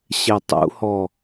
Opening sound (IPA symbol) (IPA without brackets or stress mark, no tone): ɕ